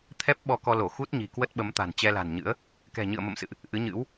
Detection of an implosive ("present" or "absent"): present